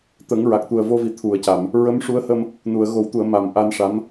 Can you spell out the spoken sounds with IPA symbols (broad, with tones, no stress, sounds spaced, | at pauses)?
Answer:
t̪ ə˨˩˦ ŋ ɹ a˨˩ k̚ t̪ u˨˩ ə̯ v o˧ v i˨˩ t̪ʰ u˨˩˨ ə̯ c a˨˩˨ m | ɹ ə˧˥ m ʂ u˧˥ ə̯ h ə˧ m | n u˨˩˨ ə̯ ɣ o˨˩˦ w t̪ u˨˩˨ ə̯ m a˨˩ m ʔ a˧ n ʂ a˧˥ m